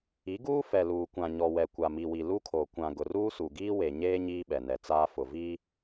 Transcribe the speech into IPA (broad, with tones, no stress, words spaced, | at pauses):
i˨˦ɡuː˦ fɛ˨luː˨kʷã˨ ɲɔ˨wɛ˨ kʷa˨mi˨wi˨ lu˦kʰo˨ kʷã˨ ɡʊ˨ruː˦su˨ɡiː˦ we˨ɲeː˦ ɲiː˦ɓɛ˨nɛ˨ t͡saː˦fʊ˨viː˦